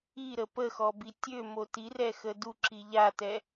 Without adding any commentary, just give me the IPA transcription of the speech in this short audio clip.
iɾə pəxɔbi tʲømo tirɛxə duǁi ʎatɛ

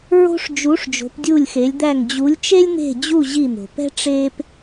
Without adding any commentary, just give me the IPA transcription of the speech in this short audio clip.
ɹo̤˥ʂ d͡ʒu˨˦ʂ d͡ʒo̤˨˦pdʲu˦˨lʲxe˨˦lʲd̪æ˦˨ŋ d͡ʑu˨˦lʲt͡ʃe˥lʲn̪e̤˦˨d͡ʑu˦˨ ʑi˦˨n̪o̤˩pɛ̤˥ ʈ͡ʂe˥p

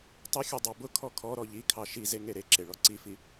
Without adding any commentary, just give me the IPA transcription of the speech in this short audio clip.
tˤʊxʲɔ dˤɑbʊkʰɔ kʰɔ ɾɔʎikʰɑ ʃize ŋeɾeǁe ɭɔǀifi

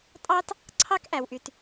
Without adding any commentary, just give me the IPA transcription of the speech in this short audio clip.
tʼɑ˥t | ǀʰɑ˥kʔæ˩wʔy˩t

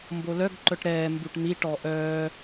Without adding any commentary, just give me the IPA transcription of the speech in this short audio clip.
mbolœɡ ǃœʈɾɛː mbuʈn̪i ʈɔʔœː

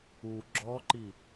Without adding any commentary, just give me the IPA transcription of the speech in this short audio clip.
u ɡ͡ǁɔǃi

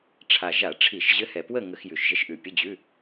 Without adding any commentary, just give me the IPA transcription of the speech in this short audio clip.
ʈ͡ʂʰa˨˩ʒa˧˩˧ʈ͡ʂʰi˧˩˧ʃʑɘ˧˥ hɛ˨˩pwə˥˨ ŋə˧˩˧xjʉ˨˩ʃʒə˧˥ʃʔʉ˨˩ pʲə˧˥˧d͡ʑʉ˧˥˧

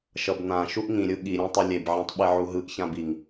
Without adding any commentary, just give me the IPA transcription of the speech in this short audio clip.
ʃʌbnã ʃuʔŋĩ ɾʲɯɠi ɾʲãtˤɯlʲeb ʕĩtˤɓeʕuɦɯʔ çãbiŋ

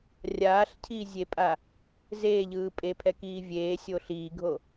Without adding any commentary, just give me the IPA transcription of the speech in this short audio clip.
rʲaːɬcʰiːzʲepʼa | zeːʎɯː pʼepʰɛkiː vʲeːsʲo ɬiːɡʱo

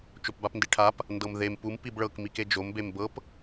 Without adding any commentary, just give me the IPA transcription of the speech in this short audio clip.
t͡ʃopbapndiʈʰap | ndɤmðem pum pibɭɤk miked͡ʒom bembɤp

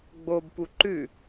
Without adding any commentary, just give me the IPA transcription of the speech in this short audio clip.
ɡ͡bob puǃʉ

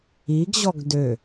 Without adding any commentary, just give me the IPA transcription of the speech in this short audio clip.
iɡʑɔɡ dø

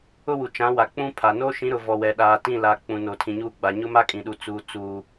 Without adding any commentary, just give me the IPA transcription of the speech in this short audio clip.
ʊ˦wu˨t͡ʃã˨˦wa˨ k͡pũ˦pʰa˨ noː˦ʃĩ˨˦ɾʊ˨ vɔ˨wɛ˨ɗaː˨ tĩ˦˨laː˨ k͡pũ˨no˨tʰĩ˨ɲuː˦ ɡ͡ba˨ ɲʊ˦ma˦kʼĩ˨ɗu˨ t͡suː˨ t͡suː˨

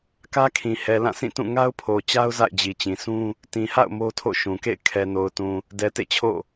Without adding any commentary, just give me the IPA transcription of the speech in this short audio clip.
kä˦kʰĩ˨ hɛ˨lã˦˨sʰĩ˦˨tũ˦˨ ŋa˦ʊ̯pʰo˨t͡ɕa˦ʊ̯ za̰˦˨ɪ̯d͡ʑi˨t͡ɕĩ˨sʰũ˦ | tĩ˨ha̰˦˨ʊ̯ mo˦ tʰo̰˦˨ʃũ˨kḛ˦˨ɪ̯ kʰɛ˨no˨ʊ̯tũ˨ | dɛ˨tḛ˦˨t͡ɕʰo̰˦˨

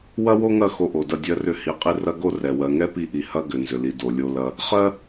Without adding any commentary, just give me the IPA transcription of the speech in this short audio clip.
wɐ˦wo˦ŋɐ˦˨ xo˧ʔo˨dɐ˦˨ dʲɜ˦rʏ˦hi˧qʼi˦ rɐ˦ɡo˦rɛ˨ wɜ˨ŋɛ˦pi˧ʔi˨ hɐ˦ ɡʏ˨nzʏ˨li˨ do˨lʲo˧lɐ˧ | χɜ˦

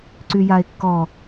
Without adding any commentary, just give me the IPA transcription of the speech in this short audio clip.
ǀyjae̯kːɔ

